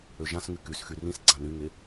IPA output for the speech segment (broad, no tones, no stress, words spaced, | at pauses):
øʒãsŋy kys xyrĩsɡ͡ǀã nyŋe